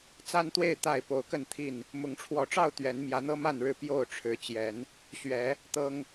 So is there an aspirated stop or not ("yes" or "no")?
yes